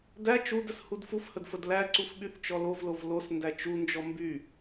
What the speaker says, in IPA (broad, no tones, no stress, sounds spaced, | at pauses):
d æ t͡ʃ u d ə s h u d f u f h ə d f ə d l æ ǀ u f ɓ y θ t͡ʃ ɔ l o v l o v l o s n d æ t͡ʃ u n d͡ʒ ɔ m b y